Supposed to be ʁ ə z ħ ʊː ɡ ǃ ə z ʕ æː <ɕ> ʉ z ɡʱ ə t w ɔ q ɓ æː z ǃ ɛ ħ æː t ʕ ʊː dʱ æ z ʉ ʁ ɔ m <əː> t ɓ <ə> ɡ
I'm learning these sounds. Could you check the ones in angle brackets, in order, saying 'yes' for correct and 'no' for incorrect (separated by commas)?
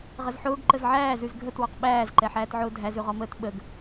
no, yes, yes